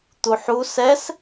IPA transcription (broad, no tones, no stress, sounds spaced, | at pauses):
t̪ u ħ u s ɛ s